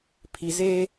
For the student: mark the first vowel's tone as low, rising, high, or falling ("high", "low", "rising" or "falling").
low